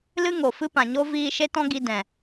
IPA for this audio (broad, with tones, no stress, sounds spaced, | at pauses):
l ɨ˦ ŋ o˨ f ɨ˦ p ã˨ ɲ o˦ v iː˧ ʃ e˦ t ɔ̃˦ ɡ i˧ d ɛ̃˨